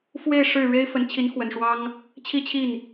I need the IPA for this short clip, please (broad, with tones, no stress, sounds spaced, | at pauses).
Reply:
f w e˥˧ ɪ̯ ʂ ɻ̩˥˩ ɻ e˥ ɪ̯ f ə˧˥ n t͡ɕʰ i˧˥ n x w ə˨˩ n ʂ w ɑ˥ ŋ | t͡ɕʰ i˥˧ t͡ɕʰ i˥˩ n